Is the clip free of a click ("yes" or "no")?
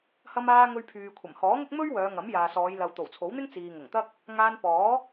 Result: yes